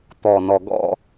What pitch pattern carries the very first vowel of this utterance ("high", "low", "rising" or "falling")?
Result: low